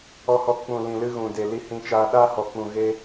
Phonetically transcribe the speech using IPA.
ɔ˧hɔ˧ k͡pũ˨ lĩ˨lɨ˧ ɣũ˨de˨ li˧hĩ˧t͡ʃaː˧ ɗaː˦hɔ˨k͡pũ˨ ɣe˧

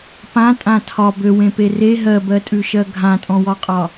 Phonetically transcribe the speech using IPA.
pãtʼã tʰɒ bøwẽpe re ɦɜbɜtʼʉʃɜ ɡʱãtʼɔ̃wɒqʼɒ

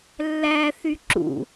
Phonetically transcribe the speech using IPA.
lːæθy ǁṵ

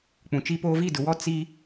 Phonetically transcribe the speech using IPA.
k͡pũ˨t͡ʃi˦poː˦ vi˦˨dʊ˨wɔ˦ t͡si˦

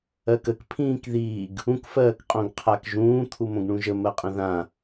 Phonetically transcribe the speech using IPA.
ɜkək pʰĩːkðiːɡ | ũkfɜːkqʼõɡqʰak ʒũːt̪ʰu mõɡɳũʒə mɜqʼə̃ðã

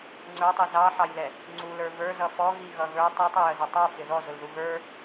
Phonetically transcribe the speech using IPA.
ŋ͡ǀə˞tˤi zɑħɑjlɛ | ŋ͡ǀulə˞ və˞zʌ fɔɣiɣʌ ɣə˞ tˤɑtˤɛjəzɔ tˤə˞fɪ ðɔzʊlðu ɣə˞

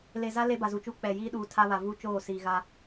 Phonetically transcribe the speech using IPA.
le˨za˦ le˦ba˨zu˨t͡ʃuː˦ k͡pɛ˨jiː˦ɗuː˨ tʰa˦βa˨vuː˦t͡ʃoː˦˨ siː˨ɣa˦

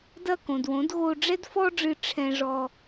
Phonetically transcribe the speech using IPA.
dɐ˦˨kõ˨dwõ˨˦d ɣo˧ɖ͡ʐɛ˦dfɔ˦ɖ͡ʐɨ˧ ʈ͡ʂʰɛ̃˦ʐɔ˦

